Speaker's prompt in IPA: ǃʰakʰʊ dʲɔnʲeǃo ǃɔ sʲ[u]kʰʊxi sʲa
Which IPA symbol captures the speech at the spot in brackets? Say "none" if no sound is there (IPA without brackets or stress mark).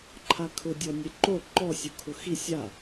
u